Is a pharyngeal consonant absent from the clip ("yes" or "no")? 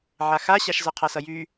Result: no